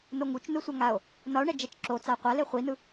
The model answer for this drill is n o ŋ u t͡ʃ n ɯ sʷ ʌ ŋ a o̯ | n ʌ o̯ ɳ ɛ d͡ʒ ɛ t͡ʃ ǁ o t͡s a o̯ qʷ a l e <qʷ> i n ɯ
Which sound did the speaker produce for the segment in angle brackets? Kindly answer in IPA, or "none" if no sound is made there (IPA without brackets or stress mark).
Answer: χʷ